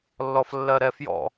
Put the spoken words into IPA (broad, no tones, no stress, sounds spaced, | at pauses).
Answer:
lː ɔ f lː ɜ ɾ ɛ f j ɔ̰